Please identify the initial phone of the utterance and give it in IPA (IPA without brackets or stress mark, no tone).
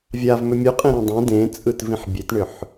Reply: vʲ